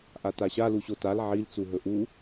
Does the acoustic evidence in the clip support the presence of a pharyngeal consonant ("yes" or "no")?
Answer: yes